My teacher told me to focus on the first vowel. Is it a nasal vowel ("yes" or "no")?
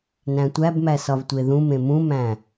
yes